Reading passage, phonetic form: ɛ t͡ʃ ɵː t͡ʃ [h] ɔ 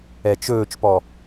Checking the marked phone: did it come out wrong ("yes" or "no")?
yes